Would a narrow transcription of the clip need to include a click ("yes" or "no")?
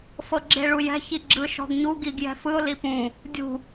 yes